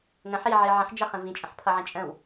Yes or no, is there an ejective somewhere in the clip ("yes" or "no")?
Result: yes